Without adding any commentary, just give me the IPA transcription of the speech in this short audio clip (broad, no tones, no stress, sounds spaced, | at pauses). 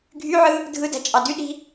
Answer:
ɡʱ y ʕ ɯ | dʱ ɯ d æ̤ t͡ʃʼ ɑ d y ɗ i̤